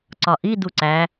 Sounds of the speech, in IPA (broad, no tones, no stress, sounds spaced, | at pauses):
ǀ ɒ ʔ i d u ǀ æ